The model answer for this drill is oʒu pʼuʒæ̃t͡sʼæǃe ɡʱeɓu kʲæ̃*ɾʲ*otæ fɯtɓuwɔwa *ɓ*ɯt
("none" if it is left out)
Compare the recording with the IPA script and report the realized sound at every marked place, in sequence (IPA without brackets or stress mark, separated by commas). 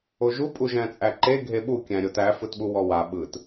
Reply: ɾʲ, ɓ